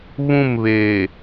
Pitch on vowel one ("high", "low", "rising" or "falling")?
falling